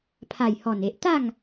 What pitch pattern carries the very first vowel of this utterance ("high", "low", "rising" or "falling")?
low